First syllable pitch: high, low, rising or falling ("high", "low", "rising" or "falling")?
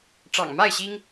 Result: low